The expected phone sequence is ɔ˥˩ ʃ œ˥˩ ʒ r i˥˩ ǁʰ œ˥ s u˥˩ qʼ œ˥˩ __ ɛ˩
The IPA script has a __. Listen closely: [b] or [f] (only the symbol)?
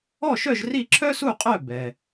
b